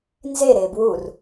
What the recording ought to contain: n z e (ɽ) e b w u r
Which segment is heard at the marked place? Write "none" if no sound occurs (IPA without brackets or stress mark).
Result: ɾ